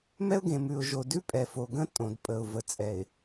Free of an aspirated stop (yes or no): yes